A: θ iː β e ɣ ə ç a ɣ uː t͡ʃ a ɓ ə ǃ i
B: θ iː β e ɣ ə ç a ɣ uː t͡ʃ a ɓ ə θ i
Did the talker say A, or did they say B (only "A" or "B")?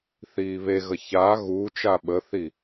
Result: B